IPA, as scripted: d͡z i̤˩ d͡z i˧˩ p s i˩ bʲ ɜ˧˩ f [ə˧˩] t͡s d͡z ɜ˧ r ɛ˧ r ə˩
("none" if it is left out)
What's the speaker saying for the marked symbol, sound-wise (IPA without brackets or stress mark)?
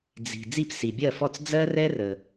ɔ˧˩